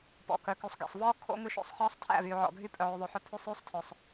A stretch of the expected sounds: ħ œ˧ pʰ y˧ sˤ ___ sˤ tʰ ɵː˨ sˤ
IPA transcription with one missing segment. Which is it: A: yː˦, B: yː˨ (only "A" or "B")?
A